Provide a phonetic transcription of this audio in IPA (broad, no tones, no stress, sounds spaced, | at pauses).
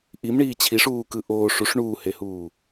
ʔ i m ɳ iː t͡ɕʰ i ʂ uː k ɯ ʔ oː ʂ u ʂ ɳ uː h e h uː